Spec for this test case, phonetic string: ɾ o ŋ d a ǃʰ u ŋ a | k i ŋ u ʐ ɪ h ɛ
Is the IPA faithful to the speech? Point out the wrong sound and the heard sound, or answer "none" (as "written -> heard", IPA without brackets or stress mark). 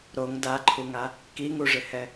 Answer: none